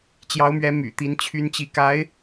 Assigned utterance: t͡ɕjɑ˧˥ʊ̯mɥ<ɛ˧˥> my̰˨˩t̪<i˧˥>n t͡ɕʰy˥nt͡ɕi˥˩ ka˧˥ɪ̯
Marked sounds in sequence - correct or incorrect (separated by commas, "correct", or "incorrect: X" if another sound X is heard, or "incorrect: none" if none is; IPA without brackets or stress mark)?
correct, correct